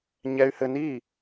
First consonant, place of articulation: palatal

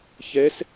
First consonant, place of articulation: palatal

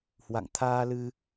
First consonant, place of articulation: glottal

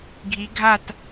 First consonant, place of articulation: velar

